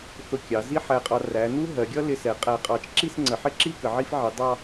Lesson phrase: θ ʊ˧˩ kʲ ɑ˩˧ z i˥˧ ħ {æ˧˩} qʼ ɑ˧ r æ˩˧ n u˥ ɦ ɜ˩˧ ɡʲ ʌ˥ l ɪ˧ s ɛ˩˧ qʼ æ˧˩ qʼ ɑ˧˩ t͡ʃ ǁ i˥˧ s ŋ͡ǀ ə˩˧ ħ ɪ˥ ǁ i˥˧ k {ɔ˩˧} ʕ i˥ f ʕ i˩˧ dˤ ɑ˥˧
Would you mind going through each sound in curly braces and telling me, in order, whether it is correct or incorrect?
correct, incorrect: ə˩˧

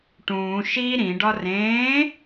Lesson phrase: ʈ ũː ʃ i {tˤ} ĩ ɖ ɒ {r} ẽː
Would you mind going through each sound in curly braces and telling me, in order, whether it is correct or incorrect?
incorrect: ɾ, correct

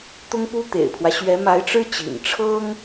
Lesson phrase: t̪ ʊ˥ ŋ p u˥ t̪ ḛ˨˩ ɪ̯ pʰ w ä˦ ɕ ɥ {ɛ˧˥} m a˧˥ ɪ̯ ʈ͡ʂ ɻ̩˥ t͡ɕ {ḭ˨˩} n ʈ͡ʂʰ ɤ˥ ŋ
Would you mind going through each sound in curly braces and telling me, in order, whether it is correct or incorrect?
correct, correct

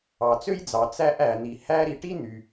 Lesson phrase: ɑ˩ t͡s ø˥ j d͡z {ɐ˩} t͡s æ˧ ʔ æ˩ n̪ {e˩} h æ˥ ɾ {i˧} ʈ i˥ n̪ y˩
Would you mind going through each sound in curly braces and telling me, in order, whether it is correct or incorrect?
incorrect: ɑ˩, incorrect: i˩, correct

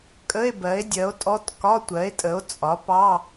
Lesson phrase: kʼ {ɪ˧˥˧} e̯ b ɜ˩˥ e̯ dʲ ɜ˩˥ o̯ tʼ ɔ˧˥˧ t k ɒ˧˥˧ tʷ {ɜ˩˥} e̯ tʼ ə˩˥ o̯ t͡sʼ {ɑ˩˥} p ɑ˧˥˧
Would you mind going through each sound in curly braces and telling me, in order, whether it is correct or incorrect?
incorrect: ə˧˥˧, correct, incorrect: ɒ˩˥

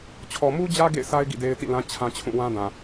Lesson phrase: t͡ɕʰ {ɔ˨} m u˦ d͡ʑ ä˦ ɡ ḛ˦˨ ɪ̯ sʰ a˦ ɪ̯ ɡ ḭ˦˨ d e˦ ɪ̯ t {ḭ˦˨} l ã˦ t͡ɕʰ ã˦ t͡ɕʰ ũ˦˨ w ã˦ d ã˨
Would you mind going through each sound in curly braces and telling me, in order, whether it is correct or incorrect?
correct, correct

